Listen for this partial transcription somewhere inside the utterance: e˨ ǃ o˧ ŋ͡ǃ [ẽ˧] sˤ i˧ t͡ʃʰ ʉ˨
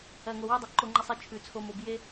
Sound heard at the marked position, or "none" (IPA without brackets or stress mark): e˧